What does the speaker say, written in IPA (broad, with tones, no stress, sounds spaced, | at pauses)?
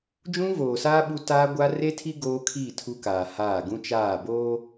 d͡ʒ ũ˦ v oː˨ s aː˦ ɓ u˦ t a˦ ɡʷ a˦ r e˦ tʰ i˦ ɡ oː˦ kʰ iː˦˨ tʰ u˦ k aː˨ h aː˦˨ ɡ ũ˦ t͡ʃ aː˦˨ b oː˦